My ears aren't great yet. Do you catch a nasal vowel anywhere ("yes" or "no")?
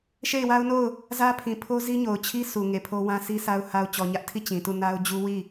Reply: yes